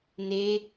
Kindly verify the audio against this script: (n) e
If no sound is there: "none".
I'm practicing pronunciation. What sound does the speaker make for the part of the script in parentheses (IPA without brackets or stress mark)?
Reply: n